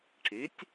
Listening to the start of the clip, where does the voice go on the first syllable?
rising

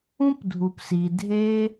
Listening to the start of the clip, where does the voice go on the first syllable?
high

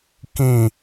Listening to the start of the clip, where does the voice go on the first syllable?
falling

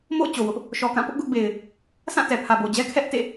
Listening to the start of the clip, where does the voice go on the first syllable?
falling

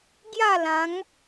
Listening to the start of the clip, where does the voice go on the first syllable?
falling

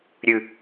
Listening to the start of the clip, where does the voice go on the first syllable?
high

